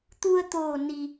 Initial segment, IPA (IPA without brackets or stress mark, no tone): t̪